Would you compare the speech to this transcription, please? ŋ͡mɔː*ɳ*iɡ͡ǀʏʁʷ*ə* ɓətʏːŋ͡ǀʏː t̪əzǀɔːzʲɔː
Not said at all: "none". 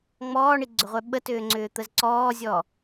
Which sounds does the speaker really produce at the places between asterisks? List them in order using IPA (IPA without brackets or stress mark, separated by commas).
ɳ, œ